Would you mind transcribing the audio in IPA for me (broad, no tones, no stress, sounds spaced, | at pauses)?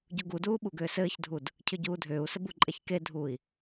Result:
ɟ u ɡ u d uː ɓ u ɡ ʏː s ɘː ç dʱ u d | cʰ ʏ ɟ uː dʱ ʏː u̯ s ɘ b u ǃʼ ɛ ç k e dʱ uː i̯